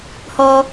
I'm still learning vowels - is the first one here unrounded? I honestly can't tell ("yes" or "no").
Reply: no